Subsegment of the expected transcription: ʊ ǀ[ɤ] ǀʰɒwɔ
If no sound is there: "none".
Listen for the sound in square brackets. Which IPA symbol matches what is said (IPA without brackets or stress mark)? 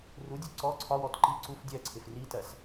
ɔ